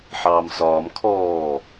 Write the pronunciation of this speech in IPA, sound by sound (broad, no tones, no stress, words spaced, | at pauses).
ħɑːmsɒːm kʰɔː